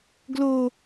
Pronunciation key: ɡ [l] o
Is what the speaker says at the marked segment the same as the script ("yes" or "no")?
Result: yes